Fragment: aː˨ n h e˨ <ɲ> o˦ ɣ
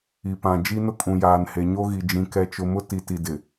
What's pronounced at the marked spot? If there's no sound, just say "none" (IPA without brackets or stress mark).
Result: ɲ